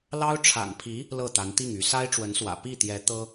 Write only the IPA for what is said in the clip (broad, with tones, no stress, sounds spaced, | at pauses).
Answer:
l ɑ˥ ʊ̯ ʈ͡ʂʰ a̰˨˩ n pʰ i˧˥ | l ɤ˥˩ t̪ a˧˥ n t̪ i˥˩ ŋ y˧˥ s a˥ ɪ̯ ʈ͡ʂ w ə˧˥ n s w ä̰˨˩ p i˥˩ t̪ j ɛ˧˥ t̪ ɤ˥